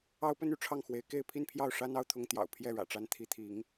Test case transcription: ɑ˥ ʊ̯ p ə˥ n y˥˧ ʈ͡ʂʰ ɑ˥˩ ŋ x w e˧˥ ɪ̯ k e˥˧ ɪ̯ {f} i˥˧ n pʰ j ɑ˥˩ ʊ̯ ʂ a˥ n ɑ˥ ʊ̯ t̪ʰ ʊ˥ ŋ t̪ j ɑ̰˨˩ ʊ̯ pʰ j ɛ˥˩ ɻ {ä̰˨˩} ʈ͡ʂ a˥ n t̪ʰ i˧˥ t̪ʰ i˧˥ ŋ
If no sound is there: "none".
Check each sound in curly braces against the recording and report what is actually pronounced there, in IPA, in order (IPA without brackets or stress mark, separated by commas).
pʰ, ä̰˨˩